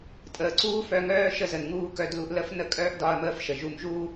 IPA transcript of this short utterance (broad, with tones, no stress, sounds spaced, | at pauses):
tʼ əː˩ ǀ uː˥ f œ˧ ŋ œː˥ ʃ ə˧ z ə˩ n ŋ uː˧ k œ˧ d l u˧ ʔ l ə˥ f n ə˥ kʼ œː˥ ʔ d ɒ˧ ɐ̯ m əː˧ f ʃ ə˩ ʒ u˧ m ʒ uː˥